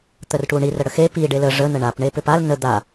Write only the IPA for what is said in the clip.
t̪ərʈuɳi rəɽəxe pi ɖelə ʐə nəɳap ɳepʏpal nə d̪a

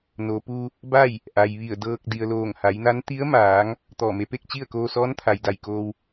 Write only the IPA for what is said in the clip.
noː˩pu˧ | ba˥˨j | ʔa˩jʋi˧˩ə̯dɤː˧k̚ di˩ə̯loː˧˩ŋha˩˧jna˧˥n t̪i˧˥ə̯maː˩˧ŋ | t̪ɔː˧˩me˧pe˥˨k̚t͡ɕi˥˨ə̯ koː˧sɔː˧˥nt̪ʰa˩j da˧˩jkoː˧w

